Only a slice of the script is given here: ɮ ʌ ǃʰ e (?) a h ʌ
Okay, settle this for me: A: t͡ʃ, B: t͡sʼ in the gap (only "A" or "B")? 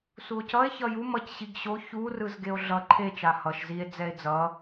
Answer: A